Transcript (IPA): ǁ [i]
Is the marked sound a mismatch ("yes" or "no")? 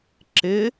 yes